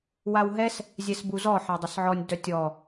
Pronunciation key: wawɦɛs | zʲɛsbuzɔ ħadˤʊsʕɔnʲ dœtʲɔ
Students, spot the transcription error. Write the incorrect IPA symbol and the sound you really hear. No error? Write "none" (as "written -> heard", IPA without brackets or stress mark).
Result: none